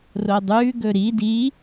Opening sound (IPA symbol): r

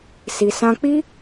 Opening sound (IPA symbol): s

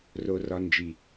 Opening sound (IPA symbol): r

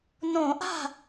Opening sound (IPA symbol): n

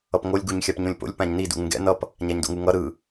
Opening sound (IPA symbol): ʌ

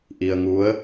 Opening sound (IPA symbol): ʔ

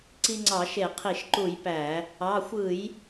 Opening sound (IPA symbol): ǀ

